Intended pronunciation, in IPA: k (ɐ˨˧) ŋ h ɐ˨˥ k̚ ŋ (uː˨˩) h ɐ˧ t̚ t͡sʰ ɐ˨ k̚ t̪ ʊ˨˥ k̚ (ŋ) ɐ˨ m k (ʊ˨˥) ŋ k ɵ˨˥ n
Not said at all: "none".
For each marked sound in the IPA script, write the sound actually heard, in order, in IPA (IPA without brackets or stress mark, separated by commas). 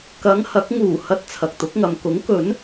ɐ˨˧, uː˨˩, ŋ, ʊ˨˥